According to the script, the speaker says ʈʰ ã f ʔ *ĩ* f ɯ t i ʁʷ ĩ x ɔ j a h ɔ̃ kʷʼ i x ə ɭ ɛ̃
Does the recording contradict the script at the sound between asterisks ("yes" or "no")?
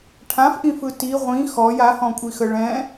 no